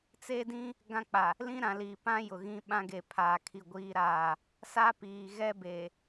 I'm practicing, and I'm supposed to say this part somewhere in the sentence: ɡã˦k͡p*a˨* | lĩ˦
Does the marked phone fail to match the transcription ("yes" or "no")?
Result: no